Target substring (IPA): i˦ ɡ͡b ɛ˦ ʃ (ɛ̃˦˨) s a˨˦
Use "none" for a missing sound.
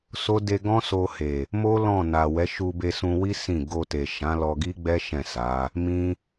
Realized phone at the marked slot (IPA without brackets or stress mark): ɛ̃˦˨